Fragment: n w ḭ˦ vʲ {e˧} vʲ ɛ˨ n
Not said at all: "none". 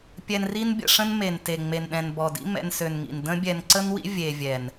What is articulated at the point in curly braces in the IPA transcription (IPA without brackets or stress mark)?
e˧